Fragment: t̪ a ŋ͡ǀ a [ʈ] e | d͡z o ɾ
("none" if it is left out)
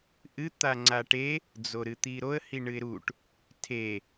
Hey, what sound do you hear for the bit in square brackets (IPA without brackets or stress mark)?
ʈ